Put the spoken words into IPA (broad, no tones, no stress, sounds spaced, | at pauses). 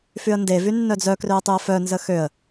f y ə̯ n d e v y nː œ d͡z œ k r ø ə̯ tˤ y ə̯ f œ n z ə x ø ə̯